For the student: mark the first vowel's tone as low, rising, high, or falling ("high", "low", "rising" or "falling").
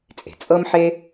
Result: low